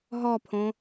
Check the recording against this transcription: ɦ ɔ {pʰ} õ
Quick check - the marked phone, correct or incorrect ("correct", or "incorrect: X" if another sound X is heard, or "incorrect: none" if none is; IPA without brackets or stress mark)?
correct